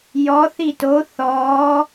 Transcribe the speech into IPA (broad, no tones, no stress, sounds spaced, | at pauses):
j ɔ θ i t o θ ɔ